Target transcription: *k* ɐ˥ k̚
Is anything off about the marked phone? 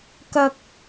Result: no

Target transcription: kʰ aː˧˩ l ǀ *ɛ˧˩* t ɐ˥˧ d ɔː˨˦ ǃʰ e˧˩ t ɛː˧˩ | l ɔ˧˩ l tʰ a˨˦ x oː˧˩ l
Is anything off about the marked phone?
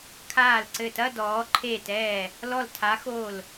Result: yes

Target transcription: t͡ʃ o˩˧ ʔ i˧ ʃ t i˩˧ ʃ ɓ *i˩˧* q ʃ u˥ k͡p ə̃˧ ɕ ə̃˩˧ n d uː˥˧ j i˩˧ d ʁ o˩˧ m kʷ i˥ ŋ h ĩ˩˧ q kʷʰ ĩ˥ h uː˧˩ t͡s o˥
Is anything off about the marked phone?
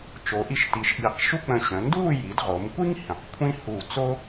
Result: no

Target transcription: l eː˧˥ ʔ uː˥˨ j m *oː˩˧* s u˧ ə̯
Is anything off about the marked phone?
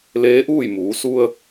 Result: yes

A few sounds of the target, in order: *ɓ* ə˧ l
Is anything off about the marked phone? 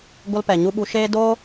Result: yes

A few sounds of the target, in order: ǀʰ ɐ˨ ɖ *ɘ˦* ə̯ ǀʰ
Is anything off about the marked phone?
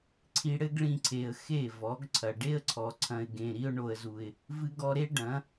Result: yes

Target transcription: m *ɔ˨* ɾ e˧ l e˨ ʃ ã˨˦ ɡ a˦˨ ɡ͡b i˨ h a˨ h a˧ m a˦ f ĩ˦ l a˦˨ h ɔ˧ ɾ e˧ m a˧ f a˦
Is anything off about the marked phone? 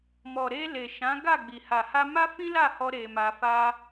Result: no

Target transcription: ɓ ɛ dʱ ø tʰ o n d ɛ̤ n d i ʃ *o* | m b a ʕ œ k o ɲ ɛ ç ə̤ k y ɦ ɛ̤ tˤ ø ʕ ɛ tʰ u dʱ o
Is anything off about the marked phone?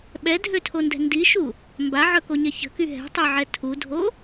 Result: yes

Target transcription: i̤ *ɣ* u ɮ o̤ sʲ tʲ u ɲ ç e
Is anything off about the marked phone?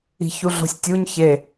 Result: yes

